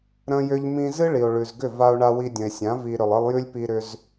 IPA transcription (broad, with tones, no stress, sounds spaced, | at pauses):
ɾ ə̃˦ j ʏ˦ ʎ m ĩ˧ z ɨ˦ ɭ i˨ o̯ ɭ ʉ˨ z ɡ ʏ˦˨ v a˧ o̯ ɳ a˧ w i˧ dʲ ə̃˨ e̯ sʲ ã˨˦ v i˨ ɾ ʏ˨ lˠ ɨ˧ lˠ j ʉ˦ lʲ p i˧ ɾ ʏ˧ z